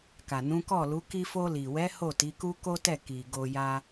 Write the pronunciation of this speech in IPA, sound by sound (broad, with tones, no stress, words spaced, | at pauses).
ka˨nũ˨˦kɔ˦˨lu˨˦ ki˧fo˧li˨wɛ˨˦ ho˦˨ti˨˦ku˦ ko˦tɛ˦˨ ki˨ɡo˧ja˦